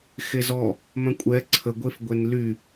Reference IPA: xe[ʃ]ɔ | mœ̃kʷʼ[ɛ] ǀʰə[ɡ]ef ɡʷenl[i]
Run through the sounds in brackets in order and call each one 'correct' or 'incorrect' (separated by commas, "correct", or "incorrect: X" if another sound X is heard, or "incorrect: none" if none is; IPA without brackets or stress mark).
incorrect: z, correct, incorrect: ɡʷ, incorrect: y